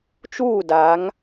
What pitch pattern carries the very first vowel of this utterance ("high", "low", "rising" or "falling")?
falling